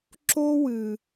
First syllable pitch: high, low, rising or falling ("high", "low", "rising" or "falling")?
high